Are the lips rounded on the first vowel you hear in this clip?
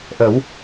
no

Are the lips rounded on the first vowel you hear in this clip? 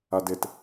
no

